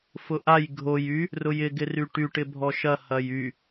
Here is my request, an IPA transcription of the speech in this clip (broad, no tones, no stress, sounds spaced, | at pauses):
f ʊ ʔ a j ɡʱ o j y | r ʊ j ɪ ɡ ɪ r y ʈ y ʈ ɪ bʱ ɔ ʃ ɐ h ɐ j y